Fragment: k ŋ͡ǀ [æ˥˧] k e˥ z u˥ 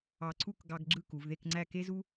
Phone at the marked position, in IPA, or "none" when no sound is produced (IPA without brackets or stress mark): æ˥˧